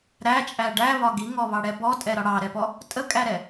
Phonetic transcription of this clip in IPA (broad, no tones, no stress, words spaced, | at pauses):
ɾæt͡ʃʼæ ɖæβɒ ɡiŋɔβɑɽɛ bɔtʼɛɾɒ ɽɑɾɛpɔ | tʼəkʼæɾɛ